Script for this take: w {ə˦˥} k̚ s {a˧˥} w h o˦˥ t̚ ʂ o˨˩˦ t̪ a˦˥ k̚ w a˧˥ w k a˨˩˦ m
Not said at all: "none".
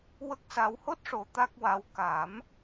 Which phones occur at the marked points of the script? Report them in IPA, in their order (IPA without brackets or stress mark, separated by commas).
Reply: ə˦˥, a˧